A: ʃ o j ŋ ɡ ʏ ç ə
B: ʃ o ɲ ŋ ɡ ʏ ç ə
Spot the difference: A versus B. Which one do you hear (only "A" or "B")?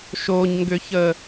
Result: B